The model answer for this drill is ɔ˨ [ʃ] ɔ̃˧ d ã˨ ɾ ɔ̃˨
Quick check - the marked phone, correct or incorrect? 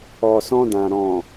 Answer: incorrect